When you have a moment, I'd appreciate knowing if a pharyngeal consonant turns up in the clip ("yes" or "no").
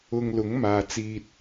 no